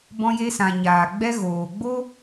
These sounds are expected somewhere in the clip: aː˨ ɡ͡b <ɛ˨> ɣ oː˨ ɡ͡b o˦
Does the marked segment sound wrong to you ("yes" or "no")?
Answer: yes